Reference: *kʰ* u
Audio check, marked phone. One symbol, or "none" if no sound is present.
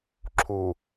ǁʰ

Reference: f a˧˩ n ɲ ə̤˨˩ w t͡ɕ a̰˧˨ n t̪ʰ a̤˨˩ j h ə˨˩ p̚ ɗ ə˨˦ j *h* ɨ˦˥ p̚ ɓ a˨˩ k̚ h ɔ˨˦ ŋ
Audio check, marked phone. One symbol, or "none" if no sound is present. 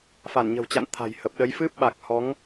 f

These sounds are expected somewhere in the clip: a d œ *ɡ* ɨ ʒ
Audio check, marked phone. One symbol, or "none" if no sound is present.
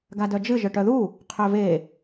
d͡ʒ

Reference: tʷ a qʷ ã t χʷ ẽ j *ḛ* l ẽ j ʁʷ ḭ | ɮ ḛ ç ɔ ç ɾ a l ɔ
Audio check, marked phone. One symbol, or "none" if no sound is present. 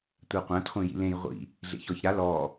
ḭ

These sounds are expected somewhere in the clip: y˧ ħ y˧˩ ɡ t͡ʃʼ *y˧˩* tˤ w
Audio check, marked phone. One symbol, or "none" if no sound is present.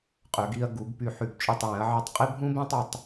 y˧˩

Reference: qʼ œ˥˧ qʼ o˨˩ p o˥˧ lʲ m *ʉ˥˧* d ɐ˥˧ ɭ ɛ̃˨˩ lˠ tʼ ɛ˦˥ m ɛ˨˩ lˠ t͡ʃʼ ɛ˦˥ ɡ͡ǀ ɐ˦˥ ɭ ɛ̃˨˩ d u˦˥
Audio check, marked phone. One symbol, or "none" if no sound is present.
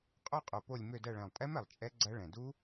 ø˥˧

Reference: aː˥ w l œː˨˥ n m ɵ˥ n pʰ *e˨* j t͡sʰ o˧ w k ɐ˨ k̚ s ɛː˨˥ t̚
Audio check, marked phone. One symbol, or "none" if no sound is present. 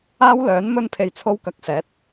e˧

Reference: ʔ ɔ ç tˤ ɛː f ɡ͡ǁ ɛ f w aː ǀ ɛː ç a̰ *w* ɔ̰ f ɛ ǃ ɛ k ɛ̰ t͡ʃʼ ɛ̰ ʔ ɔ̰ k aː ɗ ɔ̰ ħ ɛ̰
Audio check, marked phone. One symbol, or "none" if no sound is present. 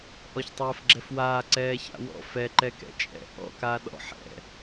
w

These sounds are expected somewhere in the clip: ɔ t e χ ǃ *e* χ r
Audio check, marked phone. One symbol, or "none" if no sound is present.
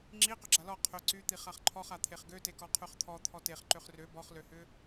ø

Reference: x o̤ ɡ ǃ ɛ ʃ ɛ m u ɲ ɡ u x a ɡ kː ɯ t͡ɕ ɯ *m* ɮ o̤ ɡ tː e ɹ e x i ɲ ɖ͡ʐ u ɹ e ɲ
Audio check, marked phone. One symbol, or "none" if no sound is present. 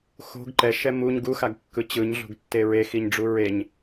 ɲ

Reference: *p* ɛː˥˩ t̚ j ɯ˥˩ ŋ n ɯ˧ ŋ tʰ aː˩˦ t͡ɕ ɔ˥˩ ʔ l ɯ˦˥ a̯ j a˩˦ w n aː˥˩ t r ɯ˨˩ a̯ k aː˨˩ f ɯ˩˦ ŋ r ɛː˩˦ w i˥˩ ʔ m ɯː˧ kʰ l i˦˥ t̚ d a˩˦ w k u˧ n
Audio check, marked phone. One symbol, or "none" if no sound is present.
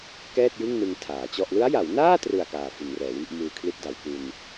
k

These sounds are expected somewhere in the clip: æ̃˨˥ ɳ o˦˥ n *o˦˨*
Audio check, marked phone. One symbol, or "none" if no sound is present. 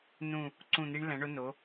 o˨˥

